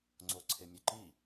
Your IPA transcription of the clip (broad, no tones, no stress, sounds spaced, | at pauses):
ŋ͡ǀ o ǀʰ e mʲ ø ǃ i